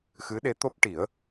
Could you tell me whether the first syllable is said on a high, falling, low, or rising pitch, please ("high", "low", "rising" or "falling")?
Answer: rising